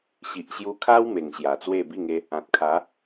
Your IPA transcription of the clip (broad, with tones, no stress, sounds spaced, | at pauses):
ɕ i˨ ʔ ɕ j u˧ kʰ a˦ w m e˨˩ ŋ ɕ j a˨˩ t͡s w e˥˧ b i˥˧ ŋ e˦ | ã˨ t̚ kʰ a˨˦